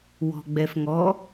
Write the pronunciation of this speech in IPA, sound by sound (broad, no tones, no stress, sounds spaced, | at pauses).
w ɔ̤ ɡ͡b ɛ f ŋ ɔ